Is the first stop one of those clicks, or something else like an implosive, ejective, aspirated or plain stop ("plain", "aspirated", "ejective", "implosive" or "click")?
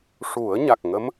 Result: plain